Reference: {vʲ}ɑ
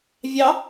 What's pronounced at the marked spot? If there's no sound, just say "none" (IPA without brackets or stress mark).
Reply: vʲ